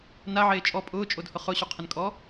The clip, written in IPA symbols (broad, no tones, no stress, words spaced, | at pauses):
naʕeː t͡ʃʼɔ pʼʊːt͡ʃʼodhʊ χʊɕuqʰɪnkʼɔ